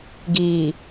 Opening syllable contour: low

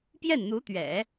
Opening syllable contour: falling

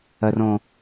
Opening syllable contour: low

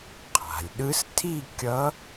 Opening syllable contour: low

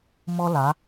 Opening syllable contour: high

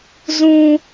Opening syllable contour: high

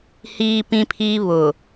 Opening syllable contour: high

